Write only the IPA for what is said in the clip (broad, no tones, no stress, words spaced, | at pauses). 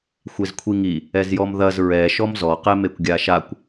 xʷezkʷʰiŋi | ɛzjɔmðɐz ɹɛ ʃɔmzɔ qɛmekʷɡʲaʃakʷ